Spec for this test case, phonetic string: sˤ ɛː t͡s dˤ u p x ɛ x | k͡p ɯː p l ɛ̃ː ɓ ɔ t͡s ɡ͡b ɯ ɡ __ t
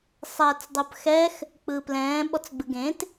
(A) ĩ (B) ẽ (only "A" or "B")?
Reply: B